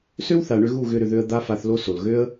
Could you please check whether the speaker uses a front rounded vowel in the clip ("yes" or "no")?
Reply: yes